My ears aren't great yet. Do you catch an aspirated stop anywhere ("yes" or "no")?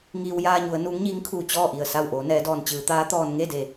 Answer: yes